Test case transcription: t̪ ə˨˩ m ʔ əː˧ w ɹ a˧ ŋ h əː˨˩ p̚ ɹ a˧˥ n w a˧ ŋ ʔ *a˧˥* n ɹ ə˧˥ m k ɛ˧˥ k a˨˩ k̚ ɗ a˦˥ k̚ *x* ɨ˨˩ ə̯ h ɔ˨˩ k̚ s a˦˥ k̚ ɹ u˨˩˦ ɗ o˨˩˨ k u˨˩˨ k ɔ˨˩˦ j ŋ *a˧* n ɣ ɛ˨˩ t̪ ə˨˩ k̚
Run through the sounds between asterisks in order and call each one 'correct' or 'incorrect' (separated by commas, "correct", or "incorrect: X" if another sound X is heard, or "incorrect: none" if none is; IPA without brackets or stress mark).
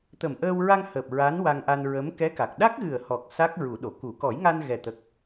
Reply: incorrect: a˧, incorrect: ɣ, correct